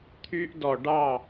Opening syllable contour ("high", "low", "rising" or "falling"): high